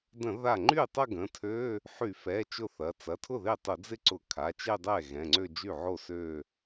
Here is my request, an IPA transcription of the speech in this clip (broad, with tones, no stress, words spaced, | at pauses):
də̃˧˩˧ ða˥˩ ŋ͡ǃy˥˩ tˤɐ˥˧ɡə̃˩˧˩tʰø˧˥˧ | ħy˧˩˧fɛ˩˧˩ t͡ʃʊ˥˩θɐ˩˧˩ t͡sɐ˩˧˩tʰʊ˥˩ ðe˥˩tˤʊ˧˩˧d͡zɪ˥˧ǀʊ˧˩˧ kʰa˩˧˩t͡ʃe˥˧dˤɛ˥˩ ɣɛ̃˩˧˩ŋ͡ǀø˥˧ d͡ʒy˥˩ʕo˥˩ sø˥˧